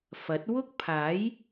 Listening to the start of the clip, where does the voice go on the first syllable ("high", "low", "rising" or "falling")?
rising